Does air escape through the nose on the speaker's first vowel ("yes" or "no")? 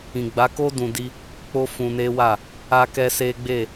yes